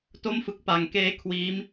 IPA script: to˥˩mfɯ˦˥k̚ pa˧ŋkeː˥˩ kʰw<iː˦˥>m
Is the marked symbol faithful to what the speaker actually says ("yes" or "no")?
yes